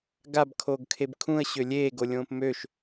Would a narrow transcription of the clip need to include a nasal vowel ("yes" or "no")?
yes